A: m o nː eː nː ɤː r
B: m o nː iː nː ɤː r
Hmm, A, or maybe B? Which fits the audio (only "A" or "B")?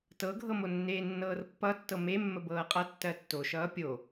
A